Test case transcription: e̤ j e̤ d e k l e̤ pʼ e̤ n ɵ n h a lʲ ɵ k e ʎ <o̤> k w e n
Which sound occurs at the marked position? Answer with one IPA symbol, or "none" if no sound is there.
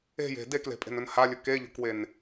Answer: o̤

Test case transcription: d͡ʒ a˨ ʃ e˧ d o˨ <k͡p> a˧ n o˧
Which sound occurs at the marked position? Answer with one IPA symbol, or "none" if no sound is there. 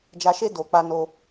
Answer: k͡p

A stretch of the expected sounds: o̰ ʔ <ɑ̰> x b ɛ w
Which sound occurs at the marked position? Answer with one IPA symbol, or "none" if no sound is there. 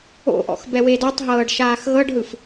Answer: ɔ̰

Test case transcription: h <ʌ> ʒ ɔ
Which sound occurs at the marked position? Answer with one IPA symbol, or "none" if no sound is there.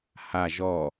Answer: a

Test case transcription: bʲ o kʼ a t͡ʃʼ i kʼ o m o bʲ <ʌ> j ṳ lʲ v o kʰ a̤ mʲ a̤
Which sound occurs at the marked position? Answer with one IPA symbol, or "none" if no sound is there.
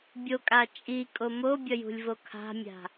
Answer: ʌ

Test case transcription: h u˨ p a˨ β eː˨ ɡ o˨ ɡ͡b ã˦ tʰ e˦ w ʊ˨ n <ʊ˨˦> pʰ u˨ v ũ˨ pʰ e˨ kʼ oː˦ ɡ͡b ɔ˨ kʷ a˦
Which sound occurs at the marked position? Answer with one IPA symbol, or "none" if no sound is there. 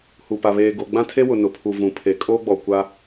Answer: ʊ˨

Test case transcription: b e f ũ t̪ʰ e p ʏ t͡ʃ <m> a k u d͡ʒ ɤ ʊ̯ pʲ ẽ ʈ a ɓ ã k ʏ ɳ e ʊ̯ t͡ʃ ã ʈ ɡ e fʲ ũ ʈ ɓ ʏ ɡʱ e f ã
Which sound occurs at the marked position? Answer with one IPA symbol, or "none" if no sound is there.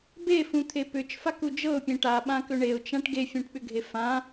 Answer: f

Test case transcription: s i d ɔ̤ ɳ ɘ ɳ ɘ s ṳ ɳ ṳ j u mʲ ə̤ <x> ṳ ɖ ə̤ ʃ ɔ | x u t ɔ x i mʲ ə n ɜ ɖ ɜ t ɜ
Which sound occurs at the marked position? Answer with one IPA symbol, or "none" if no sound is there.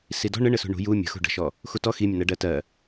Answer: x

